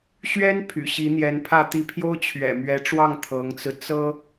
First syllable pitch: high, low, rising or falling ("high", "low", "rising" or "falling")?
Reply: high